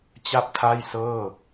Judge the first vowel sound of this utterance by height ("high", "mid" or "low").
low